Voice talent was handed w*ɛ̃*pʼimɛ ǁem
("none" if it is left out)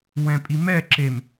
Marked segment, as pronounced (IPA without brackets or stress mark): ɛ̃